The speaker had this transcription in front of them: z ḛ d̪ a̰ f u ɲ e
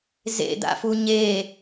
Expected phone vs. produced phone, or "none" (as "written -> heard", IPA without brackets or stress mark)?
none